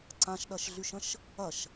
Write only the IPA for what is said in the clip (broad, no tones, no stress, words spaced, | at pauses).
ǀãʃɗɐʃɮyʃə̃ʃ | ɐʃ